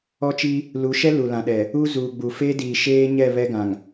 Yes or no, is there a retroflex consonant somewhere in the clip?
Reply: no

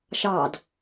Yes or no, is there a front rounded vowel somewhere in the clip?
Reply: no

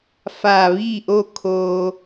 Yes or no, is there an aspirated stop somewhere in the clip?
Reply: yes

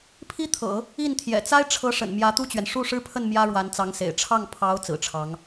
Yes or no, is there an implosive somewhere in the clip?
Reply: no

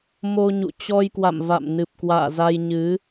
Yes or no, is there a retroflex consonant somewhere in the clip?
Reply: no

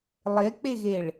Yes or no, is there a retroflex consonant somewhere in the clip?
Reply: yes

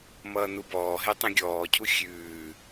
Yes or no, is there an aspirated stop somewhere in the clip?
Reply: yes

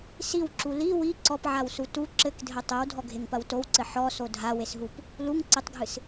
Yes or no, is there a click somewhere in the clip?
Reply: yes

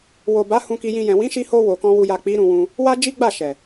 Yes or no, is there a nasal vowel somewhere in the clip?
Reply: yes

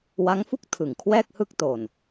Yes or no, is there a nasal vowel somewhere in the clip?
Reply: no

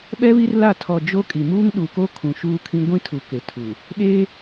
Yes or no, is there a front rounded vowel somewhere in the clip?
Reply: no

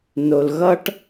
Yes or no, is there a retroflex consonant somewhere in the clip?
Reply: yes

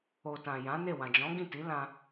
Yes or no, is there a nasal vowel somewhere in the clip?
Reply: yes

